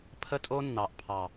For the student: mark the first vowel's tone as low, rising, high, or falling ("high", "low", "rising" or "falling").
high